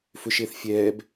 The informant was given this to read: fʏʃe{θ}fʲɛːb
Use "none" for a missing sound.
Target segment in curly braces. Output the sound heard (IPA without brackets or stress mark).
θ